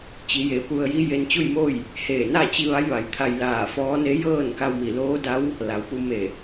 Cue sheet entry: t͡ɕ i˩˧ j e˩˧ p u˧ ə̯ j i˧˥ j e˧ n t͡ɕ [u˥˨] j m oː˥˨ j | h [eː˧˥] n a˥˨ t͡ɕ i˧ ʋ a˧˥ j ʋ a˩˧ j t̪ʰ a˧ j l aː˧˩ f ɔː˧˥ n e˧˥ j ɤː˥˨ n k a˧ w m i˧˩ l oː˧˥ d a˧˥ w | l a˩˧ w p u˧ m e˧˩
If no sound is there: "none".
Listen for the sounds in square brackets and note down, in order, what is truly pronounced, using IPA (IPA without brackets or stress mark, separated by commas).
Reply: u˥˨, eː˧˩